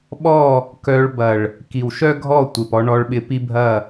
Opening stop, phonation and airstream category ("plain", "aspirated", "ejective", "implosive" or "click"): implosive